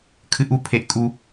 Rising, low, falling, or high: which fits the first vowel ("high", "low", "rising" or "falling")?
high